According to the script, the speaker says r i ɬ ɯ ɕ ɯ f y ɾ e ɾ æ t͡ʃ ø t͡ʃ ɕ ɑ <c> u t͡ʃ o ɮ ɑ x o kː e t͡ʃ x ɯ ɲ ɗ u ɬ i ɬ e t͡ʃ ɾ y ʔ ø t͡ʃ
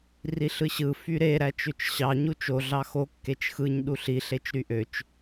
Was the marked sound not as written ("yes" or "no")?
yes